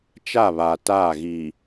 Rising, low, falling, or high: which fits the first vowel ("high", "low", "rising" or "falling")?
falling